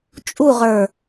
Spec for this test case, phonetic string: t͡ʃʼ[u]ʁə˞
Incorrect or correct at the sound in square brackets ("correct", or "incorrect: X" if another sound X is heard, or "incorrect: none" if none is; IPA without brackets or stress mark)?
correct